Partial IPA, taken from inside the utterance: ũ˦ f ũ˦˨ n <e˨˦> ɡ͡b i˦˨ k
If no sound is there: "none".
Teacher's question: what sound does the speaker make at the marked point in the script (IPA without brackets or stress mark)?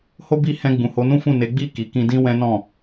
e˨˦